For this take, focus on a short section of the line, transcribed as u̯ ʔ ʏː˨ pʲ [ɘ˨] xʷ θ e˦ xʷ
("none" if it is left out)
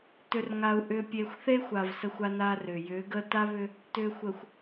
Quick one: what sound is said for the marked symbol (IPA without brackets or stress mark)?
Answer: e˨